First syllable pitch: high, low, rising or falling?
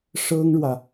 high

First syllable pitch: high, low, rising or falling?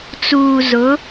low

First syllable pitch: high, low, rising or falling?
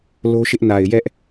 high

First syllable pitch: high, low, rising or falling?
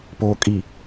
low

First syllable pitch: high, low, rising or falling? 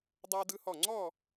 high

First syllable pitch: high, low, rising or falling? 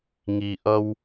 low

